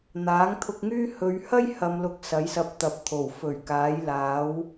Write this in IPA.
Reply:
n̪ aː˨˥ ŋ t̪ʰ ʊ˧ k̚ ŋ yː˥ h ɵ˨˧ ɥ h ɐ˥ j h ɐ˨ m l ʊ˨ k̚ s ɐ˨˥ j s ɐ˧ p̚ t̪ ɐ˨ p̚ t̪ʰ o˨˩ w f ɵ˨˩ ɥ k aː˨˥ j l aː˨˥ w

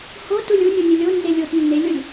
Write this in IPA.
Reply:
h o t u lʲ u nʲ u nʲ ɵ lʲ o nː e lʲ o t nː e lʲ o lʲ

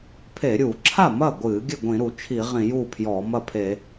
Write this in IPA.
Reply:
pʰ e˧˩˧ ɾʲ uː˧˩˧ ǁʰ a˥˩ m ɐ˥˩ ɡʷ ɨː˧˩˧ ɡʲ ɘ˥˩ ɡʷ ĩ˧˩˧ ɾ u˧˩˧ t͡ʃʰ i˧˩˧ ʁ ĩ˧˩˧ j uː˥˩ pʰ j ɔː˧˩˧ m ɐ˥˩ pʰ e˧˩˧

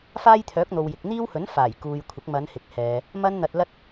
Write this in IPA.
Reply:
f aː˥ j t̪ʰ œː˨˥ k̚ n̪ o˨ w j ɪ˨ k̚ n̪ iː˥ w h ɵ˨˥ n f aː˨˩ j k uː˨ j kʷʰ ɪ˨˥ k̚ m ɐ˨˧ n h ɪ˨ k̚ h ɛː˨ | m ɐ˥ n n̪ ɐ˧ t̚ l ɐ˥ t̚

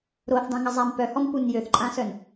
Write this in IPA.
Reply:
ɾ o θ dˤ ẽ ŋ ə zˤ a m p œ h ɔ m p u n j ø θ ǃʼ ã s œ n

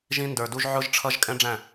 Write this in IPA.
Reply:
ʒ ĩ˧ n d ə˞˨ d u˧ ʒ ʕ ʊ˦ ʒ ʈ͡ʂʰ ʌ˦ ʒ kʼ ɛ̃˦ ɖ͡ʐ æ̃˦˨

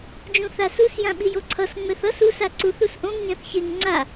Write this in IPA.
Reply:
d͡ʒ ũ θ a s u s j ã ɓ i j o ǀʰ ʌ s ŋ͡m ɛ θ ʌ s u s a ǀ u θ u s ʔ õ ŋ ɲ ã θ ç e ŋ ŋ͡ǀ a

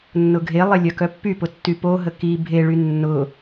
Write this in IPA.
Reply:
nː ʊ ɡʱ e lˠ ɪ lʲ œ k œ pː y p ʊ tː y p o ɦ ə k i bʱ e ɭ y nː ʊ

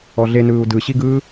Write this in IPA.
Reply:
ɔ ɮ e n ɯː u̯ d ɯ ɕ i ɡ ɯː

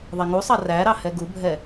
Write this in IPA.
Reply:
ðˤ ɛ ŋ u sˤ ɑ r æ ɾ ɑ h ɛ ɡ u bʱ ɛ

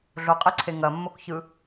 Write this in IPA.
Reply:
ɮ o qʼ i ǀʰ e ŋ ɐ mː o k ç ɯ

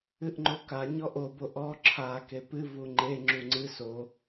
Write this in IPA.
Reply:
ɨ ʔ ŋ͡ǃ o k a ɲ ɔ ʔ o b o ʔ ɔ ǁʰ a k e p ɨ v u ŋ͡ǃ e ŋ͡ǁ u ŋ͡ǀ ɨ s o

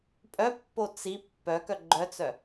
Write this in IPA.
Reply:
pʼ œ pː o t͡s i pː œ k œ ɡ͡ǃ œ t͡s œ

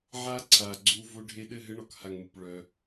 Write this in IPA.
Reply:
ʕ a˧ ǀʰ a˨ ɡ͡ǀ u˧ v o˧ ɖʱ e˧ ɗ ɘ˦˨ ɦ ɘ˧ ɳ ɔ˨ k h a˨ ŋ m u˨ p ɭ œ˧

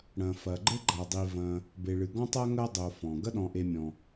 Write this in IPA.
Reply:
ɽ ɐ̃˨ f ɐ˨ ɡ͡ǃ ɘ˥ ɡ͡ǃ a˨ dˤ i˨ v ɐ̃˨ | b e˨ ɭ ɨ˨ ɡ ɔ̃˦ tˤ a˦ ŋ ɐ˦ dˤ o˨ f ɔ̃˩ ɡ ɐ˦ ɗ ɔ̃˨ ʔ e˨ mʲ ɔ̃˩

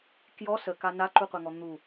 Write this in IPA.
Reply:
k j ɔ s ə k a n a ǃ u qʷ a ŋ ɔ n̪ u

